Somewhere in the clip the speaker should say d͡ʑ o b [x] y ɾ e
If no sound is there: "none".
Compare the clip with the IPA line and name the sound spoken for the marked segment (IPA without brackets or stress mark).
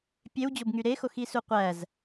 ŋ